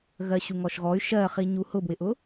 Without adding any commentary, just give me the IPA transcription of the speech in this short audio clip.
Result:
ɣ ɜ ɕ u ŋ ɔ ʃ ɣ ɔ y̯ ʃ ɜ χ i ɲ u h ʊ b w ɪ ʔ ʊ

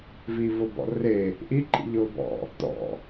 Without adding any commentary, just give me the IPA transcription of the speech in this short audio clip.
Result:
v iː v ʊ b ɔ̰ r e | ʔ i ǃʼ ḭ ʎ ʊː b ɔ̰ | t ɔ̰

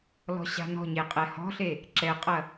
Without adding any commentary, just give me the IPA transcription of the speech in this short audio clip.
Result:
l ɔ̤ ɕ a̤ n ɔ̤ ɲ e qʼ ɛ h ɔ̤ ɬ e | ǁ ɛ qʼ ɐ

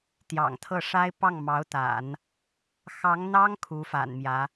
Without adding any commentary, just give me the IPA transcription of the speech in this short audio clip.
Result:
t̪ j ɑ̰˨˩ ŋ t̪ʰ ɤ˥˩ ʂ a˥ ɪ̯ p ɑ˥˩ ŋ m ɑ˧˥ ʊ̯ t̪ a̰˨˩˦ n | x ɑ˧˥ ŋ n̪ ɑ˥ ŋ kʰ u˧˥ f a̰˨˩ n m j ä˧˥

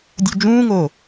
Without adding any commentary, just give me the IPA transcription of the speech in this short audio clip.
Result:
dʲ u d͡ʒ ũː ŋ oː

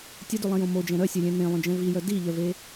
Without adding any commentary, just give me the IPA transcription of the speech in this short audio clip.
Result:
tʲ ɘ d ʉ lˠ ẽ j õ m o d͡ʒ ɛ̃ ɾ œ sʲ e lʲ ẽ n ẽ lˠ œ̃ d͡ʒ ɛ̃ v i j œ d i ʎ œ v e

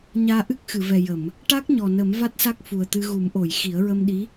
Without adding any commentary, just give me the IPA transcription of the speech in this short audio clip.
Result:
ɲ aː˧ ʔ ɨ˦˥ k̚ x ɨ˨˩˨ v ɛ˨˩ j ə˨˩˨ m | ʈ a˦˥ k̚ ɲ ɔ˨˩ n ə˨˩˦ m v a˦˥ t̚ s a˦˥ k̚ f u˨˩ ə̯ t̪ ɨ˧ ɣ u˨˩˦ m ʔ o˨˩˨ j x i˨˩˦ ə̯ ɹ ə˧ m ɗ i˧˥

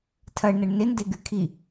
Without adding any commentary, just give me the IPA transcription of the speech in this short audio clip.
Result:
tʰ ɐ ɳ n ɐ ɳ n ɪ n d e ɡ y kʰ i

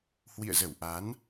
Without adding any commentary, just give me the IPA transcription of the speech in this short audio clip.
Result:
h w ḭ˧˨ ə̯ z ə˧˩ w ʔ a˨˦ n

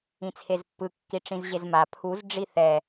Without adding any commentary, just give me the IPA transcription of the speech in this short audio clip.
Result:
ĩ t͡sʰ e z pː ɯ kː i ʈ͡ʂ ĩ z ʑ e z m a pʰ u z ɖ͡ʐ i θ ɛ

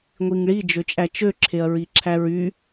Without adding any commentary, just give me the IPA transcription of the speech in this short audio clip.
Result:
ŋʷ i ŋ ɭ i d͡ʒ ø t͡ʃʼ æ t͡ʃ ø ǁʰ e ɐ̯ ɹ i ǁʰ æ ɹ y

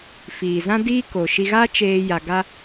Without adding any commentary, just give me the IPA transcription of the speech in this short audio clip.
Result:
f iː˨ z ã˦ d iː˦ k o˨ ʃ i˧ ɣ a˦ t͡ʃ eː˧ j a˧ ɡ a˦

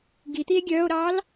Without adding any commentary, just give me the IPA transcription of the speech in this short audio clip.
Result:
ɡ i t̪ i e̯ ɡʲ œː o̯ ɾ ɑː l

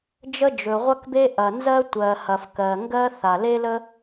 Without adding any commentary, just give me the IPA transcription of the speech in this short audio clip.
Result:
d͡ʒ ə˥ d͡ʒ ɵ˩ ʁʷ ɐ˥ k b e˥ ʔ ɐ˩ n z ɜ˥ tʷ ɜ˩ h ɐ˩ f k ɜ˩ ŋ ɡ ɜ˥ θ a˩ l e˥ l ə˥

